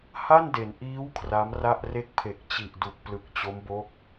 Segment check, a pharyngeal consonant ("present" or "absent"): absent